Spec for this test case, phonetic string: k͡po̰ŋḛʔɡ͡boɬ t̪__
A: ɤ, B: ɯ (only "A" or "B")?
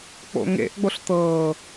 A